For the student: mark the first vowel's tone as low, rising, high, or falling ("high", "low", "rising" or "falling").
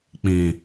low